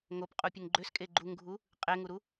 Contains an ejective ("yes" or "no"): yes